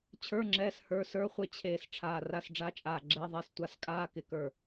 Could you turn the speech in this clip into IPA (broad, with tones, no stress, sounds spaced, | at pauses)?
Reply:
t͡ɕʰ ə˞˧˥˧ ŋ͡ǁ ɛː˧˥˧ s h ə˞˧˥˧ s ə˞˧˥˧ χʷ ɪ˧˥˧ t͡ɕʰ eː˧˩ s ʈ͡ʂʰ aː˧˩ r a˧˥˧ s ɖ͡ʐ a˧˥˧ t͡ʃʼ aː˧˩ ɡ͡ǁ ɛ˧˥˧ ðˤ ɛ˧˥˧ s tʷ a˧˥˧ s kʼ aː˧˥˧ k ɪ˧˩ k ə˞˧˩